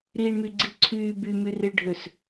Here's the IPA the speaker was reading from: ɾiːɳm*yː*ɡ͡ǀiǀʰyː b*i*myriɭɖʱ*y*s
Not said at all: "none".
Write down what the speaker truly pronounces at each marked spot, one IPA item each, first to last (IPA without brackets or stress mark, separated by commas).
y, y, ø